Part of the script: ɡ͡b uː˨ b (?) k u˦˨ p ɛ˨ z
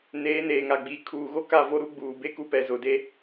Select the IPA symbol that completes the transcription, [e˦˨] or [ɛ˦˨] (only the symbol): e˦˨